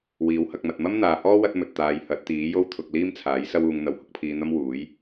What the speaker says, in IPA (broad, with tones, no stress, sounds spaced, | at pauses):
w iː˨˥ w h ɐ˧ k̚ m ɐ˨ t̚ m ɐ˥ m n̪ aː˨ h ɔː˥ w ɐ˥ t̚ m ɵ˨ t̚ t̪ aː˨˧ j h ɐ˨˥ t̚ t̪ iː˨˥ j o˥ w t̪ʰ ʊ˧ k̚ l iː˥ m t͡sʰ aː˨˥ j s ɐ˥ w uː˧ ŋ n̪ ɐ˨˧ w h ʊ˨˥ k̚ pʰ iː˧ n̪ ɐ˥ m w uː˨˥ j